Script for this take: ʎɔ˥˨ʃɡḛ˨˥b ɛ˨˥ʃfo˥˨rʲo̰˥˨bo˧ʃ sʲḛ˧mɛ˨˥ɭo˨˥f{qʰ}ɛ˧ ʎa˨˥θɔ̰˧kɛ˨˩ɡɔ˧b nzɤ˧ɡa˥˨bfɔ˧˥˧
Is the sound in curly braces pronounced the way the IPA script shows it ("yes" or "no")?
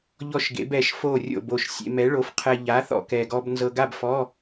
yes